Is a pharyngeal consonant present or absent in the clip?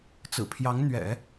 absent